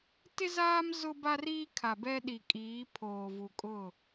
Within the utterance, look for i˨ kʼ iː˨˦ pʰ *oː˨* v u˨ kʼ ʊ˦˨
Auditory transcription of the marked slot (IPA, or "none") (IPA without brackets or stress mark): oː˨